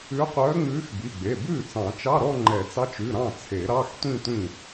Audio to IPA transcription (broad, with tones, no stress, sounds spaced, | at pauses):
ʉ˧˥ qʷ œː˧˥ ŋ͡m ʉː˧˥ x b i˩˧˩ ɡ͡b e˩˧˩ b ʉː˥˩ t͡s ɑ̃˨˩˦ t͡ʃ ɑ˧˥˧ ɾ ɔ˥˧ ŋ͡ǃ ɛ˨˩˦ t͡s ɑ˧˥ t͡ʃ ʉ˩˧˩ ɾ ɑ̃˥˩ t͡sʰ e˨˩˦ ɾ ɑ˧˥˧ x tʷ ĩ˥˧ tʷ ĩ˥˩